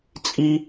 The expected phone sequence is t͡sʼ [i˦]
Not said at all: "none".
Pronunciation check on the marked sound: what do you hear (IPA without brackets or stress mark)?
i˦